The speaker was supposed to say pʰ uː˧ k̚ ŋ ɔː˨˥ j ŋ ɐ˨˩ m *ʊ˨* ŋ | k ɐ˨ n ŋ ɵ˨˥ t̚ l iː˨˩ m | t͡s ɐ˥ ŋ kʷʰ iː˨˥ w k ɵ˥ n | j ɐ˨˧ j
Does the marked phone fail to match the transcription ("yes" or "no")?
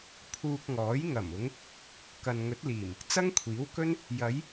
yes